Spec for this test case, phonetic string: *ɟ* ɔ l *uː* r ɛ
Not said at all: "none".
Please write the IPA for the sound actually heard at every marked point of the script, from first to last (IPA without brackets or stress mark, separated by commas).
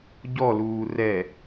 ɟ, uː